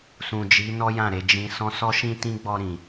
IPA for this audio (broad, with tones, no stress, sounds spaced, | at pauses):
s ũ˨ d͡ʒ i˨˦ n ɔ˦ j ã˦˨ ɾ e˧ d͡ʒ ĩ˨ s ɔ̃˧ s ɔ˧ ʃ ĩ˧ t ĩ˦ ɡ͡b ɔ˧ ɾ ĩ˨